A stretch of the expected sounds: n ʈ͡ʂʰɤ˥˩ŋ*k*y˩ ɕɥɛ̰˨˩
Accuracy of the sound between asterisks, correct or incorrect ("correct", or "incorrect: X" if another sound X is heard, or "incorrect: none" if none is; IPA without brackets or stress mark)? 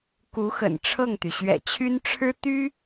incorrect: t̪